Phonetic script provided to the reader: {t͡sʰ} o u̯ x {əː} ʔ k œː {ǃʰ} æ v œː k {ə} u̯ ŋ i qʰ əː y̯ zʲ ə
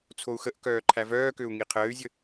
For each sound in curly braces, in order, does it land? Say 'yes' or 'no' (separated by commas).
yes, no, yes, no